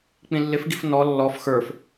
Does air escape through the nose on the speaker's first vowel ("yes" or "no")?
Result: yes